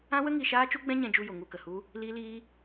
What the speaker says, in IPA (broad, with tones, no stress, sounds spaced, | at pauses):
ã˦ w ə˦ ŋ i˧ ʃ aː˦ t͡ʃ u˦ ɡ͡b ɛ̃˦ ɲ ɛ̃˧ d͡ʒ u˧ j o˨ ŋ u˧ k ə˨ h u˦ | l iː˦ l iː˦